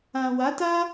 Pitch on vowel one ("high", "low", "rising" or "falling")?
low